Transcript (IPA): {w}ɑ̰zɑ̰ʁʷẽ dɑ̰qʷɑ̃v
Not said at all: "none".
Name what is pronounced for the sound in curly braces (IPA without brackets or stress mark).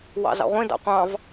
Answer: w